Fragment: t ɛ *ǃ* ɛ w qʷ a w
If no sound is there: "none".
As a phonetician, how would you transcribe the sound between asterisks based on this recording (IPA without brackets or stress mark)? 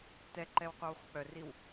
ǃ